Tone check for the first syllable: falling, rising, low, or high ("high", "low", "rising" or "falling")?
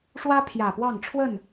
high